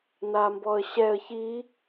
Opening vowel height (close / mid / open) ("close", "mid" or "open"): open